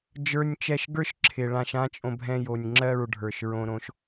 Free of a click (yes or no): no